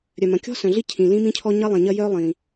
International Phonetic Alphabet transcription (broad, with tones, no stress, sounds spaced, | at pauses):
ɾʲ œ˩ m ɐ̃˩ kʲ ɔ̤˥ s œ̃˩ ɮ i˥ cʰ ĩ˩ l ĩ˥ m ĩ˥ cʰ ɔ˥ ɲ ɐ˥ lˠ ĩ˩ ɲ ɐ˥ j œ˥ lˠ ĩ˩